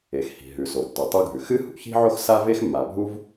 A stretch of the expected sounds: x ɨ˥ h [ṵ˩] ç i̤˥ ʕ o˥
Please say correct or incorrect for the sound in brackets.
correct